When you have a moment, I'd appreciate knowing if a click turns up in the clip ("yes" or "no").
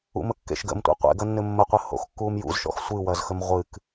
no